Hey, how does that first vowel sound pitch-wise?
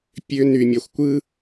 high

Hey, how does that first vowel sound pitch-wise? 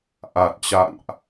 low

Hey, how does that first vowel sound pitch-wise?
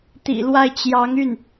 low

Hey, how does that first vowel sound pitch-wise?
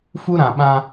high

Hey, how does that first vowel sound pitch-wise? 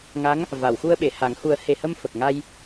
rising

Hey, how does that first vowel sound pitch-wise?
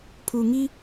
low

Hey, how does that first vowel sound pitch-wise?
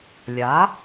rising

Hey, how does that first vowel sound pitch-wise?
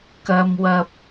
high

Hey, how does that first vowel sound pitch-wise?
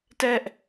high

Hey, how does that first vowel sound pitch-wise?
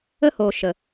high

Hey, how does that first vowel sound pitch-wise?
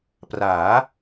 rising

